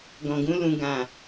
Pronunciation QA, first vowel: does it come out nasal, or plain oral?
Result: nasal